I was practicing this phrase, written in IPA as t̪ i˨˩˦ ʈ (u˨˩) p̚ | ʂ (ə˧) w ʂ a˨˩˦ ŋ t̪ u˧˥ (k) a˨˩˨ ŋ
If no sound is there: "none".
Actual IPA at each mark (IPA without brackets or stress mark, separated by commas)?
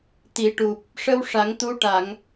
u˨˩, ə˧, ʈ